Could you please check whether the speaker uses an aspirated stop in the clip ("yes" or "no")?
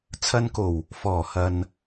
yes